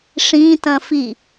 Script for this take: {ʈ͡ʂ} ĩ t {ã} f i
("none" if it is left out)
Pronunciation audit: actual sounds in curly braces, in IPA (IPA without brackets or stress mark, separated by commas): ʂ, ɐ̃